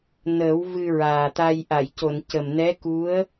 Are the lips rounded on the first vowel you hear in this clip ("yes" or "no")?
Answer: no